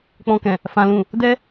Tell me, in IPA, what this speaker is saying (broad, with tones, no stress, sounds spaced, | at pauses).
k͡p ɔ̃˨ k ɛ̃˨ | f ã˨ l ũ˨ | d ɛ˧